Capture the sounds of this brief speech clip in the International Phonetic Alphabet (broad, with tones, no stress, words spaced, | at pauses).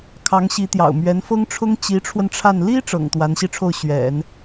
kʰɑ˧˥ŋ ɕi˧˥t̪jɑ̰˨˩ʊ̯ mɥɛ˧˥nfɤ˥ŋʈ͡ʂʰʊ˥ŋ t͡ɕi˧˥ʈ͡ʂʰwə˧n ʈ͡ʂʰa˥˩n li˥ ʈ͡ʂɤ̰˨˩ŋ t̪wa˧˥nɕi˥˧ʈ͡ʂʰo˥˩ʊ̯ ɕɥɛ̰˨˩˦n